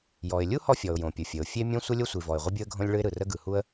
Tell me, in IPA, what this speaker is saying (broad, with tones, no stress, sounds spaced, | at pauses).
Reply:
j ɔ˩ ɪ̯ lʲ u˥ h ɔ˥ fʲ ɔ˩ ʊ̯ j õ˩ pʲ ʊ˩ fʲ ə˩ ʊ̯ fʲ e˥ mʲ õ˥ sʷ ə˥ lʲ o˥ sʷ i˩ v ɔ˩ ɪ̯ ʁʷ ə˥ bʲ ʊ˥ ə̯ ɡʱ õ˥ lʲ ɭ ɯ˥ ɪ̯ ɾ ɯ˩ r ə˥ ɡ ɯ˩ h u˥ ə̯